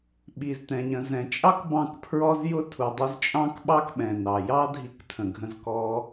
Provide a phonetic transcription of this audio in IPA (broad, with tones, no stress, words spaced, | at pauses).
ɓi˨ztɛ̃˨ ɲə̃˨zɛ̃˨t͡ʃʼɑ˦k bɑ̃˦˨kpʰɹɔ˦zjʊ˦ tʰu˨dˤu˧zt͡ʃʼɑ̃˦k ɓɑ˦kɓɛ̃˨nɑ˨ jɑ˦ dʱi˧ktʰə̃˨ɡʱə̃˧zkɔ˧